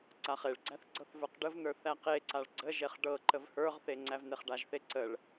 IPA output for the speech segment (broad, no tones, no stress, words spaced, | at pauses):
ǀaχeɭɡ͡ǀæθ ɡ͡ǀɤθvə˞qɖəvnə˞ θæqeǀaɭ ɡ͡ǀəʒeχ ɖɤ ǃəvhə˞ʁθe ŋ͡ǀævneχɖaʒθe ǀəɭ